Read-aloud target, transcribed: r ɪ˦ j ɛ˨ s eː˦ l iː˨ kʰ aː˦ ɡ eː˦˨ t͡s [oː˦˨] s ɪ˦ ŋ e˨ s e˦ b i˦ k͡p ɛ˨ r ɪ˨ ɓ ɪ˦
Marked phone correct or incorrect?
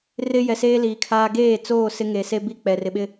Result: correct